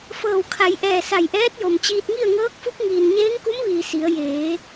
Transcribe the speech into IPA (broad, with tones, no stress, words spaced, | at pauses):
fɤː˧˩wkʰa˩˧jʔɛː˧˩ sa˧˩jʔɛː˧˥t̚jo˩mt͡ɕiː˧t̚ ŋi˥˨ə̯ŋɤː˧˥k̚fu˧˥k̚ŋiː˩n ɲeː˧˥ŋku˧˥mʋiː˩ si˩˧ə̯ jeː˩˧